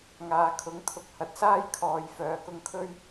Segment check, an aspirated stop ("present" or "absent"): present